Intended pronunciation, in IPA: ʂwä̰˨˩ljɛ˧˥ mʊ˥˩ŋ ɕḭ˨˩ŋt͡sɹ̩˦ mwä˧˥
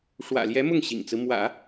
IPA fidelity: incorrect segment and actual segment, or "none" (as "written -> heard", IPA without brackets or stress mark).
ä˧˥ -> ä̰˨˩˦